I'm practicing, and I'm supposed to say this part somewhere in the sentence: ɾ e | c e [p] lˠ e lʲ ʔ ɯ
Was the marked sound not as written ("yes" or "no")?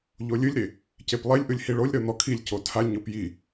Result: no